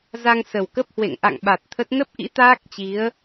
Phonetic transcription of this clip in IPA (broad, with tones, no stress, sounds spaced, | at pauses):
z a˧ ŋ s ə˨˩ w k ə˦˥ p̚ h w ḛ˧˨ ŋ ʔ a̰˧˨ ŋ ɓ a˨˩ t̚ t̪ʰ ə˦˥ t̚ n ə˦˥ p̚ ʔ ḭ˧˥ t̪ aː˦˥ k̚ t͡ɕ i˨˦ ə̯